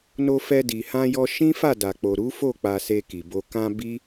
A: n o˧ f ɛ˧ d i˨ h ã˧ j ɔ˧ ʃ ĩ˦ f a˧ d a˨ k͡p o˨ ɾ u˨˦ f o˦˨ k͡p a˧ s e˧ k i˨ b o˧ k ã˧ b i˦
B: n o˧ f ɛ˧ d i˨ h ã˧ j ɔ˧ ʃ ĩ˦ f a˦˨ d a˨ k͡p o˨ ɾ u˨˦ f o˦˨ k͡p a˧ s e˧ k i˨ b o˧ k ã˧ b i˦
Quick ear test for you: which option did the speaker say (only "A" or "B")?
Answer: B